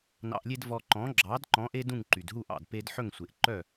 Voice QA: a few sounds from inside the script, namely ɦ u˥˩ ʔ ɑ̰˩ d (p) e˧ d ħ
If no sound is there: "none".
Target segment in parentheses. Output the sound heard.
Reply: p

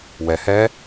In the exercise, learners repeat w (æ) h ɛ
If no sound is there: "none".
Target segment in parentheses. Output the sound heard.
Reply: ɛ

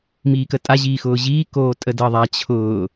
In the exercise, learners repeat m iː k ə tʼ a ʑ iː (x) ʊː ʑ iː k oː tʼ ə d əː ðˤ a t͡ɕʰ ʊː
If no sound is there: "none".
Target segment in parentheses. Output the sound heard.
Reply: x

